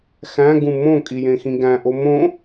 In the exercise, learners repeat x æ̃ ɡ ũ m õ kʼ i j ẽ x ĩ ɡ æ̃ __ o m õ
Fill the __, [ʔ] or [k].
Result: ʔ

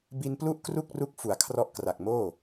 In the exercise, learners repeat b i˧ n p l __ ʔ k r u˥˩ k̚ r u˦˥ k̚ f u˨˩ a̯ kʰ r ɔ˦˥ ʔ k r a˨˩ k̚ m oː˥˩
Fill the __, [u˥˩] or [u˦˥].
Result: u˥˩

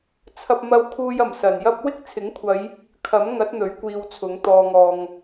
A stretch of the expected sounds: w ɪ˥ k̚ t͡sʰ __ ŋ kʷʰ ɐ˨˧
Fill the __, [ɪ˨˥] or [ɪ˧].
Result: ɪ˨˥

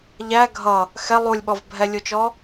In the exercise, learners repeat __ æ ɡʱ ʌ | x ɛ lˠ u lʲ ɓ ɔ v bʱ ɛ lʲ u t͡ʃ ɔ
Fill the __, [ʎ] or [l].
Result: ʎ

